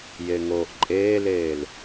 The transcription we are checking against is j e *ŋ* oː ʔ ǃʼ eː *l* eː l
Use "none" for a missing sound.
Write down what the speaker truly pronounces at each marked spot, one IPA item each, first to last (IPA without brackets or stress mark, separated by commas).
ŋ, l